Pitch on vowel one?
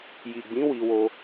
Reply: low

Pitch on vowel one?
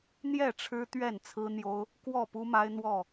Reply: falling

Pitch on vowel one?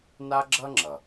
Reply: high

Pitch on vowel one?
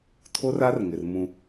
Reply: high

